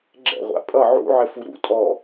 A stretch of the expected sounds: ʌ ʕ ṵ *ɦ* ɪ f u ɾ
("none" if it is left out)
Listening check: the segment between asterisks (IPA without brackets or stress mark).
ʕ